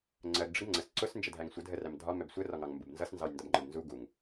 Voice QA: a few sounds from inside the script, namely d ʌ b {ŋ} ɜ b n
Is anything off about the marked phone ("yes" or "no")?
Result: yes